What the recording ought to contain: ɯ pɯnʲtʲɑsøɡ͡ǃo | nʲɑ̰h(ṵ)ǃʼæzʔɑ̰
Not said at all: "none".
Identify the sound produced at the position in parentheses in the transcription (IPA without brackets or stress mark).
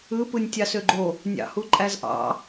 u